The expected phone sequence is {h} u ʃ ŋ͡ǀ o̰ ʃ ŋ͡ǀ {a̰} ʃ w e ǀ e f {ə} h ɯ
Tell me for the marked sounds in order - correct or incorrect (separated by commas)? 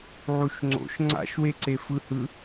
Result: incorrect, correct, incorrect